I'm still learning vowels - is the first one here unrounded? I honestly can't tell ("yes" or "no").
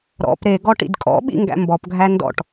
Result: no